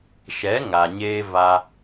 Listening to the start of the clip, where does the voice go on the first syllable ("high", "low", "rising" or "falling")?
rising